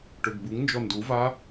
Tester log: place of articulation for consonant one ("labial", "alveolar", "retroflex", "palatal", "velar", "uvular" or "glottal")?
retroflex